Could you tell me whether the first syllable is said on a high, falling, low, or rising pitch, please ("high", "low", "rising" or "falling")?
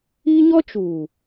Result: high